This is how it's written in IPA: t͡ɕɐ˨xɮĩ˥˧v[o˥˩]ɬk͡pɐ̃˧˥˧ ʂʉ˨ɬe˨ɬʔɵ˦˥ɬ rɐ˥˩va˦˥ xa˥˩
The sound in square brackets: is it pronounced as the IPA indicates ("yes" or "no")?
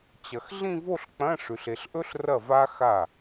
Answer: no